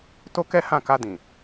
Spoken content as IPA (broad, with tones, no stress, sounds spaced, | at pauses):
t o˦ k ɛ˦ h ã˦˨ k a˧ d ĩ˨